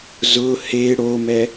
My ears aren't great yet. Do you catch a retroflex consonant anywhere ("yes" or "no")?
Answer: yes